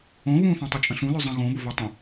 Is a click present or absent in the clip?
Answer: absent